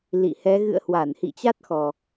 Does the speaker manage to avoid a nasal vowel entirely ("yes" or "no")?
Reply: yes